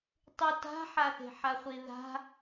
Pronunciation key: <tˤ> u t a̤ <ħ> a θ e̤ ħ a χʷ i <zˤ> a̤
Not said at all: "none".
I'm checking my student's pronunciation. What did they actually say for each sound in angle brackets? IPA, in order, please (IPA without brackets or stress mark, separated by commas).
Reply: tˤ, ħ, ð